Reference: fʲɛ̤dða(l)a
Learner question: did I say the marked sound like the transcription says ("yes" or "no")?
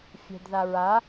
no